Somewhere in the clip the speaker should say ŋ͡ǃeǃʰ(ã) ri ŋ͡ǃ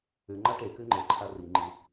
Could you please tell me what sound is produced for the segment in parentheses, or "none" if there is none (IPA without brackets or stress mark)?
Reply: a